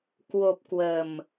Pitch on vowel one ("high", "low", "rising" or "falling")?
low